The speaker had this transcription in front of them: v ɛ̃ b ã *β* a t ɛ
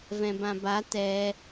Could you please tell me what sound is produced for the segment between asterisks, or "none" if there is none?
b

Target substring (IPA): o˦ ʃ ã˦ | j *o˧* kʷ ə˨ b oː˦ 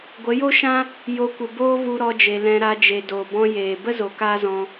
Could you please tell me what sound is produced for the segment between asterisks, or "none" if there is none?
o˧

